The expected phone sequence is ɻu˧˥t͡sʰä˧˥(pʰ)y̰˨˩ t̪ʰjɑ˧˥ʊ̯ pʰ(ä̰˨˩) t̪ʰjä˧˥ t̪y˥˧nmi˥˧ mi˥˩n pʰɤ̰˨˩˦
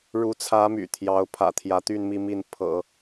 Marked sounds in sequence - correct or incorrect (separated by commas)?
incorrect, correct